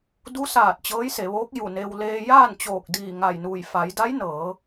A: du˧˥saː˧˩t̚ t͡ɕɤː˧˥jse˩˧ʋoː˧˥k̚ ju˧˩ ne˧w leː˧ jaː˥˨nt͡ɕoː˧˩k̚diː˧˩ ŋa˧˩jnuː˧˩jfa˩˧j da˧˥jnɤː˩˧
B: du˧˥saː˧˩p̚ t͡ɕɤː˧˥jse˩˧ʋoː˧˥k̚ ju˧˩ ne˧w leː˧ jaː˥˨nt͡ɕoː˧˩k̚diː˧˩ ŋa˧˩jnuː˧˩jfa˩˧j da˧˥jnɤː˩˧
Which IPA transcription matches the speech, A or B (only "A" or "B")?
A